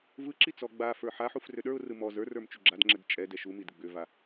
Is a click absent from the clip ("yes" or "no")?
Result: no